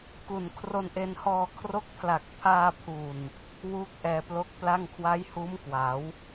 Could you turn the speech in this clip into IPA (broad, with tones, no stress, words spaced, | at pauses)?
ku˨˩n kʰro˧nʔe˧nhɔː˧ kʰro˦˥k̚pʰla˨˩k̚ pʰaː˧pʰu˨˩n | wu˦˥k̚ ʔɛː˧plo˦˥k̚ pla˥˩ŋ kʰwa˦˥jhuː˦˥m kwa˩˦w